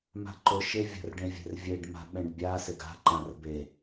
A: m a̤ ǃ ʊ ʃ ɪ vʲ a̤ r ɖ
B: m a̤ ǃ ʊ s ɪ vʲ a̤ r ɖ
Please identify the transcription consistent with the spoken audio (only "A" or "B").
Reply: A